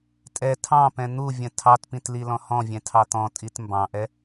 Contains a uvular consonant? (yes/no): no